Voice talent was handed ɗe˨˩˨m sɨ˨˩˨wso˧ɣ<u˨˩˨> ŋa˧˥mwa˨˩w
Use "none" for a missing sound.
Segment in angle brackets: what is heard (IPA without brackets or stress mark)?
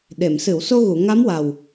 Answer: u˨˩˨